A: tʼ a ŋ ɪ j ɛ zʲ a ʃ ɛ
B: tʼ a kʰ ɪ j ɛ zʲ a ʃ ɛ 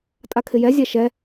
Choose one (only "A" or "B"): B